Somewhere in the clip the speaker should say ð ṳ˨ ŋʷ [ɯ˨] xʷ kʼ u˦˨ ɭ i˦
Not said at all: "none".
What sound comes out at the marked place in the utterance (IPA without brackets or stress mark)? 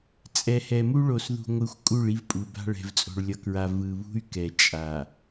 ɯ˨